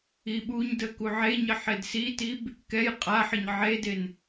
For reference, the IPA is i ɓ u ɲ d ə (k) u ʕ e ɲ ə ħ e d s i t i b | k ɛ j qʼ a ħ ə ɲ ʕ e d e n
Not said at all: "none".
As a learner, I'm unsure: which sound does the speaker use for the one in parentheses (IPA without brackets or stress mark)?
k